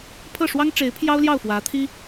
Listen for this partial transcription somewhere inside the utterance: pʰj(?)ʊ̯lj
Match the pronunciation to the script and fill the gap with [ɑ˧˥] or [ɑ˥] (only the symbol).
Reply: ɑ˥